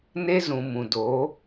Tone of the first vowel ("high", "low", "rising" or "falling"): high